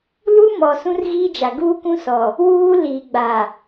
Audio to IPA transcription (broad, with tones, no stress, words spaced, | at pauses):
lu˦mɔ˨ sũ˦rɣiː˦d͡ʒa˨ ɡuː˦kũ˦sɔ˨ | wuː˦ liː˨ɡ͡ba˨